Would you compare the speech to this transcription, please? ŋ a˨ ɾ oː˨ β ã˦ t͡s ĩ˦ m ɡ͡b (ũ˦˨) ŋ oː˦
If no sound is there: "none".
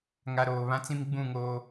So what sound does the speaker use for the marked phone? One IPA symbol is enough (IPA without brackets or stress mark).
ũ˦˨